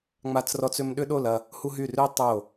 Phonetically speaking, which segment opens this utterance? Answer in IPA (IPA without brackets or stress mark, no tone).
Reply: ŋ͡m